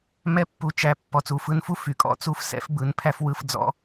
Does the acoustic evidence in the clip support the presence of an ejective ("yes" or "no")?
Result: yes